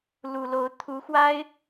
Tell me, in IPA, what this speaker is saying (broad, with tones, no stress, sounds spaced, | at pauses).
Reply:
l u˨˩ l o˧˥ ʊ̯ t̪ʰ u˧˥ x w a˥ ɪ̯